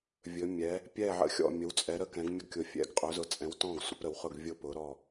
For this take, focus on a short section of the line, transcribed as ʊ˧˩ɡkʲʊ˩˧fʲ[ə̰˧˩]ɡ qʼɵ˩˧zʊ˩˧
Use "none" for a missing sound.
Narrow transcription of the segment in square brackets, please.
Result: ɛ̰˧˩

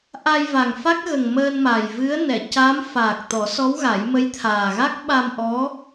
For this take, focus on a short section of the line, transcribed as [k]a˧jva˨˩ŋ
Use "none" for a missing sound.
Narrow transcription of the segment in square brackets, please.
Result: ʔ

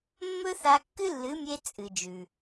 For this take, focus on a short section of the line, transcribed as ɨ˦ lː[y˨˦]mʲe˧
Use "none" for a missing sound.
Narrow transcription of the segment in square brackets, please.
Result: ɨ˨˦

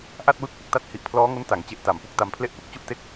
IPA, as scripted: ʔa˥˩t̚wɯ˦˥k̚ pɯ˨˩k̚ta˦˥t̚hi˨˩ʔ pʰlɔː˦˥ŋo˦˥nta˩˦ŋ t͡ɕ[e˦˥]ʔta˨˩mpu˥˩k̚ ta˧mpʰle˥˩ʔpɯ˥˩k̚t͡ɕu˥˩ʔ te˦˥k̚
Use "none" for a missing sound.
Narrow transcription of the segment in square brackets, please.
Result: e˦˥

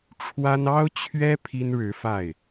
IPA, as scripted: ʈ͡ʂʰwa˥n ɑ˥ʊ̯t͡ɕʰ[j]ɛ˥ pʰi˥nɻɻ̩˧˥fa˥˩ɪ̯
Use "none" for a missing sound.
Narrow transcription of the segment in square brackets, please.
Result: ɥ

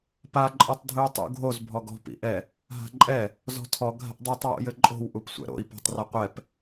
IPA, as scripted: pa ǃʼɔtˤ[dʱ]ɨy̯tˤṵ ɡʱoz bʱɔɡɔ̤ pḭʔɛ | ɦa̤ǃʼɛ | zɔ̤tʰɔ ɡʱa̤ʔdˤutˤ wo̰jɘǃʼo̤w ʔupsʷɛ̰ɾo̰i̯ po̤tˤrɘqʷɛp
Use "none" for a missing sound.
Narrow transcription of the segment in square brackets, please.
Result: dʱ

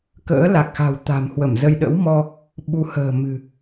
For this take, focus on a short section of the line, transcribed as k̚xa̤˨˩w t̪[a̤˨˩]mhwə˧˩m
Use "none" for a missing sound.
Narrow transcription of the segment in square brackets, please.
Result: a̤˨˩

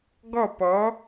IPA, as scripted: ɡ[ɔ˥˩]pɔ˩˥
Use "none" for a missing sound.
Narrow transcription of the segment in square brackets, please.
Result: ɔ˥˩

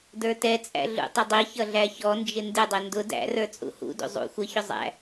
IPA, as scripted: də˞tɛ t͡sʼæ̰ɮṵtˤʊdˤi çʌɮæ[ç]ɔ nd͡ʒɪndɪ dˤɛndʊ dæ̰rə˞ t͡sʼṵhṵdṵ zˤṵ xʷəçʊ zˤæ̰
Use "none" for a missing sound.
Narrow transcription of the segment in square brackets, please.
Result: ç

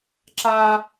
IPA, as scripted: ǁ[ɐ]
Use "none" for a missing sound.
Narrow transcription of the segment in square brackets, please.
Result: a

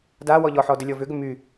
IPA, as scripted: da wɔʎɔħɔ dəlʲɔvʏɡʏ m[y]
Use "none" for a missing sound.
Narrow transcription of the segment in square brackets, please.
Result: y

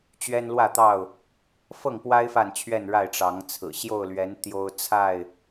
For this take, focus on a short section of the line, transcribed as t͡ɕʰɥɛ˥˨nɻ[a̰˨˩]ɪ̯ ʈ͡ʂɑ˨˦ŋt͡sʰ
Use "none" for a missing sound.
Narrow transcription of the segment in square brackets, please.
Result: a˥˨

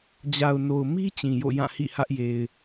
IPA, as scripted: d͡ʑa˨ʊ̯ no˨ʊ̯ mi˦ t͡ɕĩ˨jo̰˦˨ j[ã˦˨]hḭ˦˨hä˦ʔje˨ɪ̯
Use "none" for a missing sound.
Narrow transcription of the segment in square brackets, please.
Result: ã˦˨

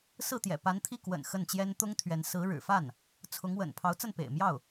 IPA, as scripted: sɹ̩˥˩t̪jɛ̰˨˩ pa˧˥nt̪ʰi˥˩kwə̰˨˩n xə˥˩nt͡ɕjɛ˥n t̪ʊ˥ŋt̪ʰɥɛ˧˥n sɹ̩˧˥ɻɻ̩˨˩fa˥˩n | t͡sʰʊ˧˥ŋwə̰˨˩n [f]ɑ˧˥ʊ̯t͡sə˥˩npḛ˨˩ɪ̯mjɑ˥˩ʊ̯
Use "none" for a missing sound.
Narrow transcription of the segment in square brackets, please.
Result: pʰ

